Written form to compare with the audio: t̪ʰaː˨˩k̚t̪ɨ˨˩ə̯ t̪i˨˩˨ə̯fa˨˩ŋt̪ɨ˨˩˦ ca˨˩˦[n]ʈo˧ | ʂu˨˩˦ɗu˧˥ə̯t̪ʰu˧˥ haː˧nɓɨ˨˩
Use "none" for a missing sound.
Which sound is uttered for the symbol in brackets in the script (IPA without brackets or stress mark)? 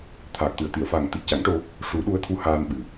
ŋ